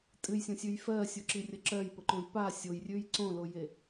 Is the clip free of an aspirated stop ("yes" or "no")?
yes